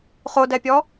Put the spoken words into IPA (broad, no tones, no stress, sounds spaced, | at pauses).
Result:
χ o d ɛ pʲ ɔ